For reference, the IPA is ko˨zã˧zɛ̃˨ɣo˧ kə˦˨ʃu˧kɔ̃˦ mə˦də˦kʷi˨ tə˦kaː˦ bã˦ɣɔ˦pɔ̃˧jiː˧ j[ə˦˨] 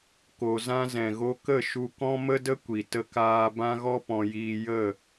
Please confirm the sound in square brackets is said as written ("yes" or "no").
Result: yes